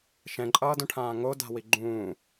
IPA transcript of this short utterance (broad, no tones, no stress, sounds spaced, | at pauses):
ʃ ɛ̃ ǃʼ ʌː d õ ʈʰ ãː ŋ o d a̤ w i ɡ͡ǃ ũː